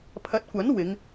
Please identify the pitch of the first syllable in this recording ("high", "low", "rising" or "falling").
rising